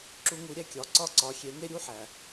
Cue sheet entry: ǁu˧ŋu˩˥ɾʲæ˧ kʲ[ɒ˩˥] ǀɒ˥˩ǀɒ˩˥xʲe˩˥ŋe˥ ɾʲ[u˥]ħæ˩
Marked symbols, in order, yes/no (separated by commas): yes, yes